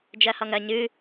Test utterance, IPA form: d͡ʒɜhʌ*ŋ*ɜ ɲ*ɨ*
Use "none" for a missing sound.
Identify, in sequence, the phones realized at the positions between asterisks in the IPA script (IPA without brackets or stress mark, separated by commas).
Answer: ŋ, ɨ